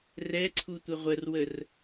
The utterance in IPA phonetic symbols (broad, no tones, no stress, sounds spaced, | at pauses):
r ɛ ǀʰ u tʷ ə ʁʷ ə r w ə r